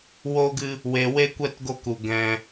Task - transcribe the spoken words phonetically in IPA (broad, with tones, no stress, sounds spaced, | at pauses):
w o˦ ɡ ɨ˦ | w e˧ w e˦ kʷ ɛ˦ t ɡ o˦ k u˧ ɡ ɛ̃˧